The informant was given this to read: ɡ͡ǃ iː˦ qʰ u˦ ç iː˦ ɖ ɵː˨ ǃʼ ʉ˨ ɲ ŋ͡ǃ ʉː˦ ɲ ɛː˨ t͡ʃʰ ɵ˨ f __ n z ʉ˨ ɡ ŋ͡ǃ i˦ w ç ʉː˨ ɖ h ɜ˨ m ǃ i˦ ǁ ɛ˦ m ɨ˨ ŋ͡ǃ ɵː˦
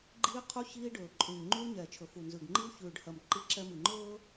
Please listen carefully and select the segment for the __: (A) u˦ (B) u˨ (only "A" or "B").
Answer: B